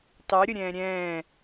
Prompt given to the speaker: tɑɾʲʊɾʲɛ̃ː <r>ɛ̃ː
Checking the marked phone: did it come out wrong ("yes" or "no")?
yes